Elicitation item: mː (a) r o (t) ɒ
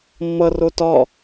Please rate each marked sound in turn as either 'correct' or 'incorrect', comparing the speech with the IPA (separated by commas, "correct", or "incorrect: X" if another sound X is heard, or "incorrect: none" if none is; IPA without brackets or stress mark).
incorrect: ʌ, correct